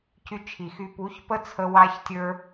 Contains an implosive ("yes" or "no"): no